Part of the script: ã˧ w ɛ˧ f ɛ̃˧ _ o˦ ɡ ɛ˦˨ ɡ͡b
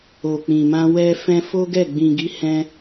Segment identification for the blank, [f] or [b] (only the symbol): f